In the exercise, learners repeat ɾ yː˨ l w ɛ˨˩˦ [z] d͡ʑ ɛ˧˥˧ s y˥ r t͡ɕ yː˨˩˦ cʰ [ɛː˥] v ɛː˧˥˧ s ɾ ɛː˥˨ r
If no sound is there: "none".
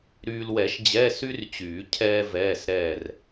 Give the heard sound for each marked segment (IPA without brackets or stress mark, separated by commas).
ʃ, ɛː˥